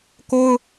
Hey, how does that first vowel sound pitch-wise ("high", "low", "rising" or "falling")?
high